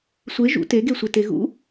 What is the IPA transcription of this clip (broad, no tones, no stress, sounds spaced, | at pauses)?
sʷ e ʒ ṵ t e ɡ e sʷ e t e ɣ ṵ